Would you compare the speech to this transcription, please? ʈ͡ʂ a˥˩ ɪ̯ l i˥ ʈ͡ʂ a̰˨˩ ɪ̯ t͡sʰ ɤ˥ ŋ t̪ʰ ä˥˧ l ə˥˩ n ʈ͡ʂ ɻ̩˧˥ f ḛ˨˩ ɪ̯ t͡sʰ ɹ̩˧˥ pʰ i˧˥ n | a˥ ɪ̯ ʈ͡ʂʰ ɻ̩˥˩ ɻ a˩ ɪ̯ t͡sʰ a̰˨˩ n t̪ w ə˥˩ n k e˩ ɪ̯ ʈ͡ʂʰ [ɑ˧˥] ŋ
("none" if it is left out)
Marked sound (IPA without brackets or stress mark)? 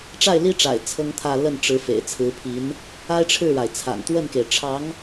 ɑ˧˥